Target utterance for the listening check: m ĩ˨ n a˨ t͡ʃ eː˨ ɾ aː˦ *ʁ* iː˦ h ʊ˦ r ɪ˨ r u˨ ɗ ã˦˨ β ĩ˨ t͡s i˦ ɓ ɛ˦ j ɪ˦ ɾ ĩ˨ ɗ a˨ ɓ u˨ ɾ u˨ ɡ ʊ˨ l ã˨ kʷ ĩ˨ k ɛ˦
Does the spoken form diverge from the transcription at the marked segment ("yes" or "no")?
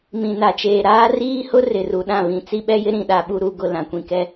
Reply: yes